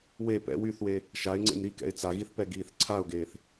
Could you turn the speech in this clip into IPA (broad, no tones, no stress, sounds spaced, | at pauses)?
w e p ɛ̰ w y θ w e | ʃ a ɪ̯ ŋ͡ǀ ḛ m ɾ i k ɛ̰ ɪ̯ t͡s a ɣ i θ p ɛ ɡ iː θ ǀʰ a ʊ̯ ɡ eː θ